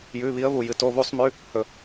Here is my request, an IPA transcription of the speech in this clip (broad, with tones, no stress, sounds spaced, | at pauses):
j ʉ˩˧˩ β i˨˦ ə̯ β u˩ j ɨ˩ t o˩˧˩ β u˧˩˧ sˤ m ʉ˩˧˩ | h ɵ˩